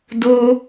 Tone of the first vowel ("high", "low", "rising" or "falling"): high